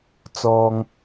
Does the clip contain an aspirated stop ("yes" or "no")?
no